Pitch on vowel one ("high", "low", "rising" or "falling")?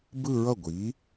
falling